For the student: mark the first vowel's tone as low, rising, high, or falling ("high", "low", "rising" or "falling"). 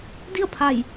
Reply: falling